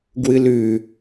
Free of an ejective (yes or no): yes